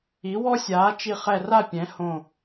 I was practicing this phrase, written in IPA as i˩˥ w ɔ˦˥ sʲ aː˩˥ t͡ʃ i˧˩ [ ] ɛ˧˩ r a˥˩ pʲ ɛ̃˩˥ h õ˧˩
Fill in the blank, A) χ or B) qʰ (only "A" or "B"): A